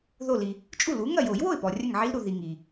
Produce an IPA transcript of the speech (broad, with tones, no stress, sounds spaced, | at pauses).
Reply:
ð o˧˩ l i˩ | t͡ʃʼ u˥˩ l u˩˥ ŋ ɐ˥˩ j o˨˩˦ j w o˥˩ ɪ̯ p ɔ˩ rʲ ɐ˥˩ ŋ ʕ i˦˥ l ɾ u˩ ð i˩ ŋ i˩